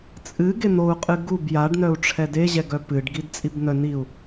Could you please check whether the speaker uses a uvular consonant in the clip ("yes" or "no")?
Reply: yes